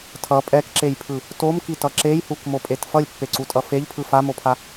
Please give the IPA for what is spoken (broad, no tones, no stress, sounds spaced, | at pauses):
tʰ ʌ pʼ ɛ k ǁ e j pʰ ɯ | t o m k i t ʌ ǁ e j h u k m o pʼ e t f ʌ lʲ pː e ǀ u tʼ ʌ f e ʎ pʰ ɯ f a m o pʰ a